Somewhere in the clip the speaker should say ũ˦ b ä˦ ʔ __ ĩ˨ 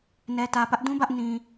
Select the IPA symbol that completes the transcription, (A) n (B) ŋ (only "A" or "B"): A